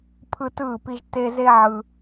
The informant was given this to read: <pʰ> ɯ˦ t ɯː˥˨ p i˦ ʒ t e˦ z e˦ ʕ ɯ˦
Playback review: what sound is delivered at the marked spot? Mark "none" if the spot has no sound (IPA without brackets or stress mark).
pʰ